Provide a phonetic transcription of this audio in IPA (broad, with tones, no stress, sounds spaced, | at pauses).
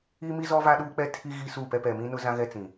i˦ m i˦ z ɔ˦ v a˦ ɗ uː˦ k͡p ɛ˦ tʰ i˦ ɣ i˦ s uː˦˨ p ɛ˦ p ɛ˨ m ĩ˦ n ʊ˦ z ã˦ ɣ ɛ˦ t͡s ĩ˨